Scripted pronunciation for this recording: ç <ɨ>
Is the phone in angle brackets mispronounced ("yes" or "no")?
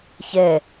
yes